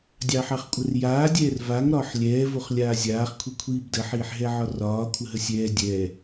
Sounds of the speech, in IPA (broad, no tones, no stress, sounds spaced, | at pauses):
dʲ ɑ ħ ɑ χ kʷʼ ə r j aː dʲ ɛː r v a ŋ ɾ ɒː ħ lʲ ɛː v o χ lʲ aː zʲ aː χ kʷʰ i kʷʰ iː b d ə ħ iː ħ ɦ ɛ ʕ ɒ r ɒː kʷʰ ə ɦ ə sʲ ɛː dʲ ɛː